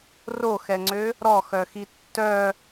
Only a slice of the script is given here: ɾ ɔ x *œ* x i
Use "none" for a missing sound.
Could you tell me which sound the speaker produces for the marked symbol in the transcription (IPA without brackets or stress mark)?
œ